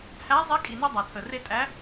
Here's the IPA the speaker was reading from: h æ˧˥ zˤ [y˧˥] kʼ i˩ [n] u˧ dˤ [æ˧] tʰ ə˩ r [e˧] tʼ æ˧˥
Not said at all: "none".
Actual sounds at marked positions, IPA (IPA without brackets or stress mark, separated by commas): e˧˥, n, æ˩, e˧